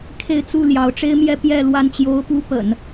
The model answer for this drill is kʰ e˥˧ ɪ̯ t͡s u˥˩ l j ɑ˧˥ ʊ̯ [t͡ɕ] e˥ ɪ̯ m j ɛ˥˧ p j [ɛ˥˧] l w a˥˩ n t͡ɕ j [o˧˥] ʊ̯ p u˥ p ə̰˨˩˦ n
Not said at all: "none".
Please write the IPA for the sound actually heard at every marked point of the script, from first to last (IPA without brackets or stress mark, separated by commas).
ʈ͡ʂ, ɛ˥˧, o˥